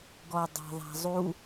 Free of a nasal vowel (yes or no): yes